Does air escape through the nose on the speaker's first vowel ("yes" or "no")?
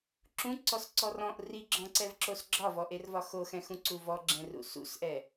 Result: yes